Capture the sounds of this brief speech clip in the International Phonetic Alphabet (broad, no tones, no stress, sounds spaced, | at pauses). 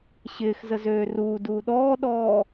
ɕ ɪː x z ə z øː r uː d uː ɗ ɔː ɗ ɔː